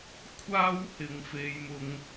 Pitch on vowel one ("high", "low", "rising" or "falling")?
high